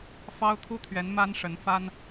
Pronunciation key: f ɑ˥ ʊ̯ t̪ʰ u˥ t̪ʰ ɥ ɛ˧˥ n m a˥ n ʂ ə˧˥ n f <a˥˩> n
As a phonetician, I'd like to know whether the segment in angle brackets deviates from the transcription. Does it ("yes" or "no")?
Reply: yes